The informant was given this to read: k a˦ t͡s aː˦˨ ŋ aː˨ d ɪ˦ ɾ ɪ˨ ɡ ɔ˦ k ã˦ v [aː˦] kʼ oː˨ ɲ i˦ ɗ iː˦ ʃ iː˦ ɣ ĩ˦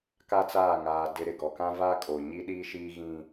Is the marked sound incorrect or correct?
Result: correct